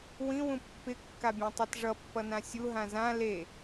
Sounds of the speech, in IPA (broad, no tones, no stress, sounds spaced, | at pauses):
w ĩ w ũ pː ɪ kː a bʲ ã tˤ e t ʐ ʌ pː ʌ n ã sʲ u ɦ ã z ã l e